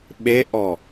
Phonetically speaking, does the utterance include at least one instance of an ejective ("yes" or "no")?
no